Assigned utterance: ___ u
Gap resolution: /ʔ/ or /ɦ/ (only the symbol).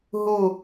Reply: ɦ